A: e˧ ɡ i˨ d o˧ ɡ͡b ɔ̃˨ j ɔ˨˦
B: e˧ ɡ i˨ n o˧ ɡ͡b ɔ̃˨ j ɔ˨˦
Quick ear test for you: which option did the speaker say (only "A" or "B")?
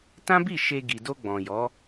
A